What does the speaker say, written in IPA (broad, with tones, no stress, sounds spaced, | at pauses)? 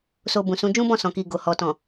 s o˧ b ũ˨ s ũ˨˦ d͡ʒ ũ˦ b ɔ̃˦˨ s ɔ̃˨ k i˨ ɡ o˨ h ɔ˨ t ɔ̃˨